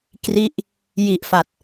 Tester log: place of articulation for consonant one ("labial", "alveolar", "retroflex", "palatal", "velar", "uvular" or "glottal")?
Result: velar